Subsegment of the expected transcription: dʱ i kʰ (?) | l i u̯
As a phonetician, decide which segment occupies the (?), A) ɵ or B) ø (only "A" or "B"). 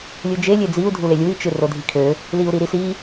B